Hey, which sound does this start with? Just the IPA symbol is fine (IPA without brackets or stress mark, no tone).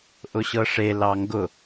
ʔ